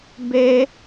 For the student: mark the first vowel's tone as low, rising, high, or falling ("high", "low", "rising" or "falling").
high